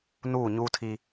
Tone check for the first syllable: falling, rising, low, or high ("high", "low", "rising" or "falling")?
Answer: falling